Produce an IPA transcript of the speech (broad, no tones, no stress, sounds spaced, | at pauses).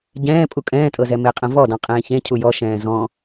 ɟ ɛ̃ː pʼ u kʼ ɛ̃ː tʼ ɤ z ɛ m e qʼ ɛ̃ v ɔ d ɔ̃ qʼ ẽː ç ẽ cʰ u j ɔ ʃ ɛ̃ː z ɔ̃